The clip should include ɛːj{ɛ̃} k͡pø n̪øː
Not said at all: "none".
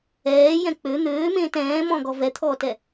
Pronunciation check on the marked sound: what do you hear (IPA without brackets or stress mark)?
ɛ̃